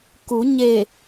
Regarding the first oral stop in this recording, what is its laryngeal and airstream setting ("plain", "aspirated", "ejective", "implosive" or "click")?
plain